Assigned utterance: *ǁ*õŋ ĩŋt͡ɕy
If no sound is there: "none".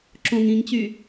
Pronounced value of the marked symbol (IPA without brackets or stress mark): ǁ